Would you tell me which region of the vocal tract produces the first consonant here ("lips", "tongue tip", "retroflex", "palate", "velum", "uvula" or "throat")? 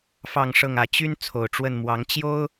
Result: lips